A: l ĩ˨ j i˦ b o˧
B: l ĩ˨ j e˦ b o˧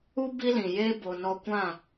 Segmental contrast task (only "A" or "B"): B